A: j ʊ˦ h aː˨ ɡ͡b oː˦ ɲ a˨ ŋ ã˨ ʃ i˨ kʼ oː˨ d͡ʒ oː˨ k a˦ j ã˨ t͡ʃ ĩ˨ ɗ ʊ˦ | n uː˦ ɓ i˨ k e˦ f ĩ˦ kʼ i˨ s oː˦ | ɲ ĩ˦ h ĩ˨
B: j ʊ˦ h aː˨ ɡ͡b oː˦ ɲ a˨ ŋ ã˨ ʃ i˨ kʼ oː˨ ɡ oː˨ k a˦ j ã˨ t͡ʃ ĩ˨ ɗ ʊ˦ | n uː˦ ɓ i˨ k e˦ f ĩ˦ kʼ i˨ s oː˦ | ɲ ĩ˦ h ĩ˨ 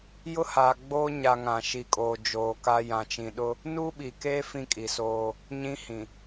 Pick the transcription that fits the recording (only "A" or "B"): A